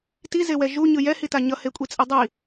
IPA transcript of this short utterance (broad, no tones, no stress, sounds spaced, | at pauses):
t i z e w ɛ ʒ u ɲ ɯ j ɛ h i t a ɲ ʌ h e kʷʼ i t͡sʼ i dˤ i